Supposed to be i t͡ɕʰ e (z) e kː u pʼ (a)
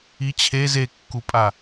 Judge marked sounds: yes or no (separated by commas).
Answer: yes, yes